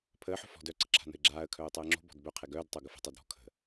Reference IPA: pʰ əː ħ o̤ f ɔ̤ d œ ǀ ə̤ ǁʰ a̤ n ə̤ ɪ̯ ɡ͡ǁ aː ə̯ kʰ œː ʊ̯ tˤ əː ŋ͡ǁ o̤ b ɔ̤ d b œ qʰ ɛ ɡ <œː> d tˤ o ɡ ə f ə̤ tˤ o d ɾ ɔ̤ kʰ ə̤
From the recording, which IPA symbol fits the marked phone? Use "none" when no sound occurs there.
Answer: œː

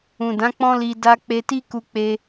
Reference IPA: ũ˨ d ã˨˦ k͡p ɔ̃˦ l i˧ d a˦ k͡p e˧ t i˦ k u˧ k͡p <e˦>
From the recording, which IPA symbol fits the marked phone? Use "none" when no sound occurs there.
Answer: e˦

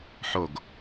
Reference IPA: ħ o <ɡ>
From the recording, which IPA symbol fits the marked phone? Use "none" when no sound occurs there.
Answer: ɡ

